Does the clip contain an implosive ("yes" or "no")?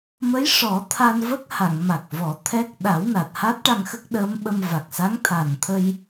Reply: yes